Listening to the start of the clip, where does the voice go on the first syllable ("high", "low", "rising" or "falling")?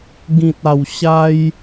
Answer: low